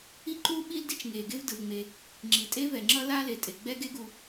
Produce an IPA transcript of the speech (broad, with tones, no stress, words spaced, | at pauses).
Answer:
i˥ǃu˥ ɓi˥ldi˥t͡ʃ ŋe˩ ɡe˥vdɯ˩vŋ͡me˩ | ŋ͡ǁi˩tʼe˥ vɛ˩ŋ͡ǁʌ˥ la˥le˩tʼe˩ ɡ͡bɛ˥ɡe˥ɡu˩